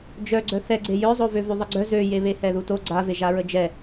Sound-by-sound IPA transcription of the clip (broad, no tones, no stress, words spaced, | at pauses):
d͡ʒœɡ͡ǀœ θɛɡ͡ǀe jœzˤovøvy ðˤəɡ͡ǀœ zøje βehɛðuto ɡ͡ǀaveʒaɹə d͡ʒɛ